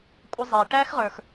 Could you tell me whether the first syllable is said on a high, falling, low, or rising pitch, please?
high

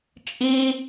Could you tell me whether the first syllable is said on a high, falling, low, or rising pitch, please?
high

